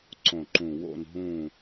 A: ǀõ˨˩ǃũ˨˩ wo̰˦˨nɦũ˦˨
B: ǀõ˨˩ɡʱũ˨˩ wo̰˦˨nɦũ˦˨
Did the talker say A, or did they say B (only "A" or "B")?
A